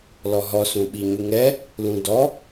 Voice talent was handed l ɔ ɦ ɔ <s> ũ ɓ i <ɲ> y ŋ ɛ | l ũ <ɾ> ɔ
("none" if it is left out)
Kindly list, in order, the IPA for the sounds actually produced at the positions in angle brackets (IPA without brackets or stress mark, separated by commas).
s, ɲ, d